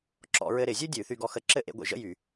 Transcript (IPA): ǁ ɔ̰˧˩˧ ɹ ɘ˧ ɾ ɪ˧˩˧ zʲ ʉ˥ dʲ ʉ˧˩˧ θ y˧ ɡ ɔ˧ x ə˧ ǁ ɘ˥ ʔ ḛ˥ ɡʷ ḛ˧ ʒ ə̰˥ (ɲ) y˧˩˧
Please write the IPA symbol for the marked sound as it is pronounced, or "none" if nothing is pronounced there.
j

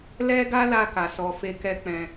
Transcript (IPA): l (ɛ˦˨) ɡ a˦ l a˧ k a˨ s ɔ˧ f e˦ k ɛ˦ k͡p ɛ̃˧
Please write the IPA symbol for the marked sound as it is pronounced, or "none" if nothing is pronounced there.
ɛ˦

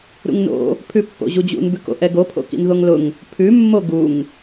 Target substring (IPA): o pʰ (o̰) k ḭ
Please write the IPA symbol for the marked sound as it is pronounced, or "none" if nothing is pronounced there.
o̰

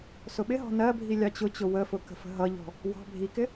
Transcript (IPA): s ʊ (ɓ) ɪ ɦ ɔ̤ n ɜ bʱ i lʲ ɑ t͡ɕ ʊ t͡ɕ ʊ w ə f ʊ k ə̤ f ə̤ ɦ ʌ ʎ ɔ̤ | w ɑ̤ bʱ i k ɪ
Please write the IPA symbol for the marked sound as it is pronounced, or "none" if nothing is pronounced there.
ɓ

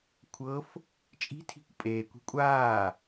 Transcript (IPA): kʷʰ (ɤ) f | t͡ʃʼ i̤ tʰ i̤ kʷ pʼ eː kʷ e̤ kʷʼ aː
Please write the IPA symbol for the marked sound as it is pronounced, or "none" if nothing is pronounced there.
ɤ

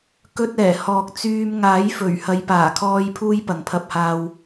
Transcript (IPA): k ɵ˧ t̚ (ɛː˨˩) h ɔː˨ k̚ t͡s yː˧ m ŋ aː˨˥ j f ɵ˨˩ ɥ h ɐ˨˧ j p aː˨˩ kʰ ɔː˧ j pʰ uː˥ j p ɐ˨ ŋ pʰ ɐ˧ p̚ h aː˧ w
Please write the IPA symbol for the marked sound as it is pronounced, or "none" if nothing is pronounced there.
ɛː˨˩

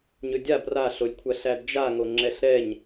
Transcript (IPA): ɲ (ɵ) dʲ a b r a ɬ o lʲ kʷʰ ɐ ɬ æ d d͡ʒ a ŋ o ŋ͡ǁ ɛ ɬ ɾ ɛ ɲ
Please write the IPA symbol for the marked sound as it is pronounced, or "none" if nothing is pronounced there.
ɵ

